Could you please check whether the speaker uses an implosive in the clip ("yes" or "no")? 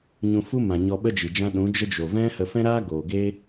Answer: yes